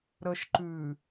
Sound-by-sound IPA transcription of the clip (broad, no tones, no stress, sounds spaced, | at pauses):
ɾ ə ʃ ǃ ʉ